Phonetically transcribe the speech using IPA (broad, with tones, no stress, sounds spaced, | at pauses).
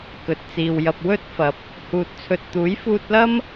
k ɵ˨ t̚ t͡s iː˨ w j ɐ˨ p̚ w ɵ˥ t̚ f ɐ˨˥ p̚ | h uː˧ t̚ t͡sʰ ɵ˧ t̚ t̪ uː˨˥ j f uː˧ t̚ l ɐ˥ m